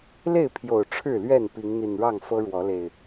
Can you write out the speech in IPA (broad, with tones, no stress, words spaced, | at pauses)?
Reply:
le˥˨ɪ̯pʰjo˨˩ʊ̯ ʈ͡ʂʰɻ̩˥˨lɥɛ˥˨n pi˨˦ŋn̪i˨˩nɻɑ˥˨ŋ fɤ˦ ɻwɔ˨˦le˨˩ɪ̯